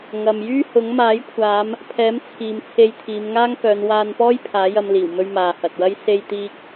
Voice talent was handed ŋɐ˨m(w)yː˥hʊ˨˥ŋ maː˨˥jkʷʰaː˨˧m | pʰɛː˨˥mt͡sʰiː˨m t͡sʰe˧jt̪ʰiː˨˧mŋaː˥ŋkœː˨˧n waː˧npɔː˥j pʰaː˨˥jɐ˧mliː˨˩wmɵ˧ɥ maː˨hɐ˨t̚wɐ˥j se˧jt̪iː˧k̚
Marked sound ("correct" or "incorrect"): incorrect